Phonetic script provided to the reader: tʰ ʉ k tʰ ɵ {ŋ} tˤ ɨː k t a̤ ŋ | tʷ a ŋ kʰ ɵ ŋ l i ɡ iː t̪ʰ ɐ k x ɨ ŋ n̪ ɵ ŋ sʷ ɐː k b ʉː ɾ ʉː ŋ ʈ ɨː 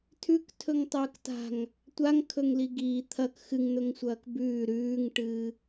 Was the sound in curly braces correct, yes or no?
yes